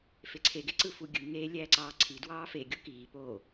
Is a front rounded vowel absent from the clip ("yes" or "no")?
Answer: yes